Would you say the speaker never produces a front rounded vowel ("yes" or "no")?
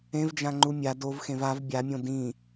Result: yes